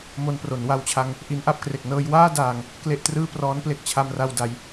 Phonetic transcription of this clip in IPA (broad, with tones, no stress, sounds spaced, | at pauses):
m o˧ n p r o˩˦ n w a˧ w t͡ɕʰ a˧ ŋ | ʔ i˦˥ n ʔ a˦˥ p̚ k r e˨˩ k̚ n ɤː˧ j w aː˥˩ d aː˨˩ ŋ | k l e˥˩ ʔ t r ɯː˥˩ p r ɔː˦˥ n p l e˦˥ k̚ t͡ɕʰ a˧ m r a˧ w d a˩˦ j